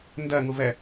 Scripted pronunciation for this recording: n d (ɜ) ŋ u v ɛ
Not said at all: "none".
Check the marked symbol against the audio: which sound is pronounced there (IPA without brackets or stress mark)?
ɜ